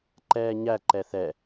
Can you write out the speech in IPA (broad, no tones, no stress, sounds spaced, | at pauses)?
ǃ ɛː ɲ æ ǃ ɛ θ ɛ